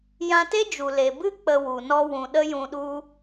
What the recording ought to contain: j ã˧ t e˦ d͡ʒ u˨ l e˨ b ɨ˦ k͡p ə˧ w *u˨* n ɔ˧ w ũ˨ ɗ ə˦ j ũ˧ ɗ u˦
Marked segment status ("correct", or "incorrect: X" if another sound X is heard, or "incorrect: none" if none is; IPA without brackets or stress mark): correct